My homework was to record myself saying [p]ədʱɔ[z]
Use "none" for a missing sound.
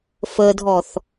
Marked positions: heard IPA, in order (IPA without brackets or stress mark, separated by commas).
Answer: f, θ